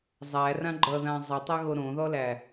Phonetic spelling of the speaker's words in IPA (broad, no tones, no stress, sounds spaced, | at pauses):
zˤ æ r ã ɡ͡ǃ ʌ ð ã zˤ ʌ tˤ a ɣ o ɾ õ ð ɔ l æ